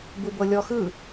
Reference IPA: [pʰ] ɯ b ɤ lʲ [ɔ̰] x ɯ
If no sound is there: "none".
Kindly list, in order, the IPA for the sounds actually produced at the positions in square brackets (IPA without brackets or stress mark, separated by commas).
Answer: b, ɔ